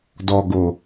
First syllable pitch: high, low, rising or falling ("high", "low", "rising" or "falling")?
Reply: low